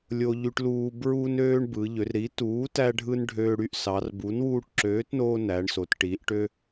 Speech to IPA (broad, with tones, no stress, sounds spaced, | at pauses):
lʲ o˧ ʎ y˧ ʈ l uː˧ b ɹ u˧ n øː˧ ɳ b ɯ˩˧ ʎ ø˩˧ r ɾ i˩˥ t uː˩˥ t æ˧ ɖʱ ɯ˧ n ɖʱ øː˧ ɽ y˧ ʔ s ɑ˩˧ r b u˩˥ n w uː˧ ʈ ǁ øː˩˥ t n oː˧ n æ˩˧ ɳ s o˩˧ t ʈ i˩˧ ʔ ʈ ø˧